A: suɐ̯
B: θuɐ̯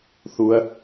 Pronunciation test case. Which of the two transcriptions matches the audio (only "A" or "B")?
B